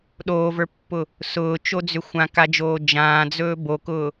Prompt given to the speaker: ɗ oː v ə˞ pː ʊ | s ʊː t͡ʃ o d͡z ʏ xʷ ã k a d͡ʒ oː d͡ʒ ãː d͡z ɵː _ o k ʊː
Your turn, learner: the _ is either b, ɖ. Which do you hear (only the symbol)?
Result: b